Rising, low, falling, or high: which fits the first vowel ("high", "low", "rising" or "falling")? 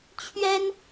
high